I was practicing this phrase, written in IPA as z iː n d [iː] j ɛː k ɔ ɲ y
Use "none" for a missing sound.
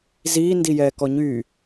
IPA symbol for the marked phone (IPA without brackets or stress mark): i